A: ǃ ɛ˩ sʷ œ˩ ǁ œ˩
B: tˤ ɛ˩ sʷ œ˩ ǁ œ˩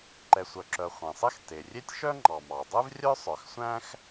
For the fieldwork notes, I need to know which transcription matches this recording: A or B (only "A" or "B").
A